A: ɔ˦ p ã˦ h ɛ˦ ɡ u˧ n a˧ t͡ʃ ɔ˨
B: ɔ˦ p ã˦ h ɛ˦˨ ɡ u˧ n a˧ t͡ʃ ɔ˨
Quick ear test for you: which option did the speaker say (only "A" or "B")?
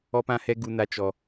A